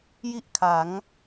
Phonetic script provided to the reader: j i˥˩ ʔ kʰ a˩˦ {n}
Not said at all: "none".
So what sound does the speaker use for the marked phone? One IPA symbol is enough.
ŋ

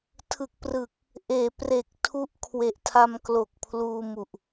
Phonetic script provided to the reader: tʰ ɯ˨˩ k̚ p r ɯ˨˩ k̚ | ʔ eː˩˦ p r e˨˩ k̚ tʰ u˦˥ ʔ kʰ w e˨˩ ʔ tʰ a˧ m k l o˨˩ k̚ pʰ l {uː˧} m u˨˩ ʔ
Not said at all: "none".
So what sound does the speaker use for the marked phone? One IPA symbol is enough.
uː˧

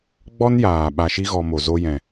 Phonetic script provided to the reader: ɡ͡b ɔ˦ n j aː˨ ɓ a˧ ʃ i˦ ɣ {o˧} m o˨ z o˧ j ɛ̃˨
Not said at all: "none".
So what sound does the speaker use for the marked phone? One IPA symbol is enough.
ɔ˧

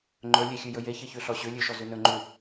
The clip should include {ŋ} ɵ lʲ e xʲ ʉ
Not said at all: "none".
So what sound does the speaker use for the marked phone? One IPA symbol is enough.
ŋ͡ǃ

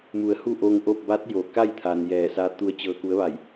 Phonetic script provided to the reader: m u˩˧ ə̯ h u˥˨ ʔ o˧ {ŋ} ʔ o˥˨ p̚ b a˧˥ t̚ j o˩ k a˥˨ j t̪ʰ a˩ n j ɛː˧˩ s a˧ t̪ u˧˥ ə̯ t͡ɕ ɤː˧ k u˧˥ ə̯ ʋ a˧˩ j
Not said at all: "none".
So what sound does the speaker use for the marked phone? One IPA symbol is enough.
ŋ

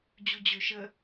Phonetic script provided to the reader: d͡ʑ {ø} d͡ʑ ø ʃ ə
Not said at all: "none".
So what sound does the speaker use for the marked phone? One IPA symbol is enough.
u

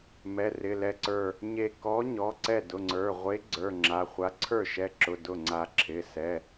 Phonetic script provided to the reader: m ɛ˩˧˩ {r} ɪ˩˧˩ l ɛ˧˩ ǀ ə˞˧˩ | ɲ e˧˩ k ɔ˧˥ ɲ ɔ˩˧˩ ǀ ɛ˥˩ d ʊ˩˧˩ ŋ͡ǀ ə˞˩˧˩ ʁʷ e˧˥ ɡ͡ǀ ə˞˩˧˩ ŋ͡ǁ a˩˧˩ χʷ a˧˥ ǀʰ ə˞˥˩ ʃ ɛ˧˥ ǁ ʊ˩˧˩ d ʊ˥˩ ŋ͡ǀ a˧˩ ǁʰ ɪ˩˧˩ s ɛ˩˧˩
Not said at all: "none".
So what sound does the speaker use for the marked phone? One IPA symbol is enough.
r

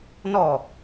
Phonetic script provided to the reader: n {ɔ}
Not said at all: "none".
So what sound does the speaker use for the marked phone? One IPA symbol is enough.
ɔ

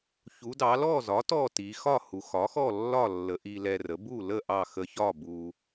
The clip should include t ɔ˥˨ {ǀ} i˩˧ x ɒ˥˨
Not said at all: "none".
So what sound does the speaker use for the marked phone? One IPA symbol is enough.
t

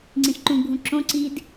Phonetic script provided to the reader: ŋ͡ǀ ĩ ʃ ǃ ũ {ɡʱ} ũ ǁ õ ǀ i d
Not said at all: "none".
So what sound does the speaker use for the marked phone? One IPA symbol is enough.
ɡʱ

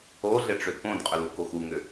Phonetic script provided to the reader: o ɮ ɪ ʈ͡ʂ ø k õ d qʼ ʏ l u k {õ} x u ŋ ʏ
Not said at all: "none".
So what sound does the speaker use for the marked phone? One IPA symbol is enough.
o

